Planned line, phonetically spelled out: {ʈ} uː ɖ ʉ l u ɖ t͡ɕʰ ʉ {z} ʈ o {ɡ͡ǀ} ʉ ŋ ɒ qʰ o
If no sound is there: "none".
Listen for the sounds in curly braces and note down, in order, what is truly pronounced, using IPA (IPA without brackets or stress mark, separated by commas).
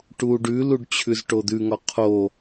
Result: ʈ, z, d̪